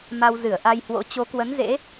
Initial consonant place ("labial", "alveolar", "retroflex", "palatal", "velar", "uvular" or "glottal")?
labial